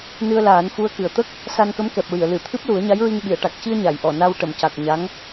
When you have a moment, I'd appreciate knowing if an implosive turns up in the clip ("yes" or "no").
yes